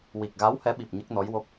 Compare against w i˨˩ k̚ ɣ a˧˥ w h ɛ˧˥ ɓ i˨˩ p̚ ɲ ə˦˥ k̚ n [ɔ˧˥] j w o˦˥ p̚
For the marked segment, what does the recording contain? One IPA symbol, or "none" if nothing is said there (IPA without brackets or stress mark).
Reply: ɔ˧˥